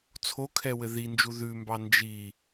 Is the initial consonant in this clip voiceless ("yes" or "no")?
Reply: yes